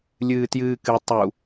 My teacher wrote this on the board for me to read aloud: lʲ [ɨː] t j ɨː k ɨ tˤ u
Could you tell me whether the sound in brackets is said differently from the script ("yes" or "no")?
no